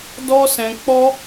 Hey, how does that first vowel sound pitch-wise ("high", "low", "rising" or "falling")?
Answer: high